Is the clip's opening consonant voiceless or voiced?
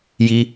voiced